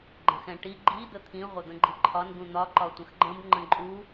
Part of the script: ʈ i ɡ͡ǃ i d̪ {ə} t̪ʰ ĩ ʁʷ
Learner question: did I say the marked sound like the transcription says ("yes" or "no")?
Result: yes